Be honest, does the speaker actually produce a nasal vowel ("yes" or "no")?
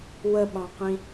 yes